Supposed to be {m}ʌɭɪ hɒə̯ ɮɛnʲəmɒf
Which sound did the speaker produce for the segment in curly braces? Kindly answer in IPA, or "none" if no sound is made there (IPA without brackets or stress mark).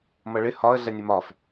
m